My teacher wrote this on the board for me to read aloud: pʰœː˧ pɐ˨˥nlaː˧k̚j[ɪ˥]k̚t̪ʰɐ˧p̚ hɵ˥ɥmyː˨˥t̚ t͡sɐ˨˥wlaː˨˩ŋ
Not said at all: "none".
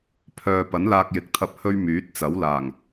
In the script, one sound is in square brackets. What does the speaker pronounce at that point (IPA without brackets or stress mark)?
ɪ˨˥